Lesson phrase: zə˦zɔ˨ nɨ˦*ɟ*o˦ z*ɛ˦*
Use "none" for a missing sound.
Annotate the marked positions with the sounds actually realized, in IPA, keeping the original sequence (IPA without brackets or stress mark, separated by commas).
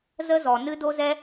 d, ɛ˦